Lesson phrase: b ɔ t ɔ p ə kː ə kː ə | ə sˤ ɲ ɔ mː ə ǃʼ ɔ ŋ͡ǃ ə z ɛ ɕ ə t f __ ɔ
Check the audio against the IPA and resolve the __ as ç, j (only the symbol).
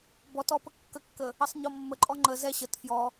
j